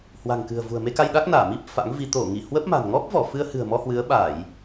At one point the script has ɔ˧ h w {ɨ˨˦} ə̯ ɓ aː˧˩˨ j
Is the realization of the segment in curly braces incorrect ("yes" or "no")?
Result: no